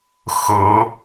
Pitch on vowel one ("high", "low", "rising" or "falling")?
rising